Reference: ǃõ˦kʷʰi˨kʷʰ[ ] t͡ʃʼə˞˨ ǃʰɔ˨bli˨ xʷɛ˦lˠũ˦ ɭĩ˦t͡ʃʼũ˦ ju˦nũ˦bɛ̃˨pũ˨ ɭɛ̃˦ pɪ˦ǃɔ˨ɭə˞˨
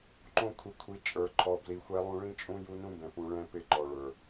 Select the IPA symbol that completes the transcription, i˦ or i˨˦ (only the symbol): i˨˦